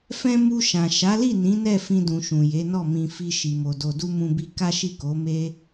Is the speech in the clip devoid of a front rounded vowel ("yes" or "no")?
yes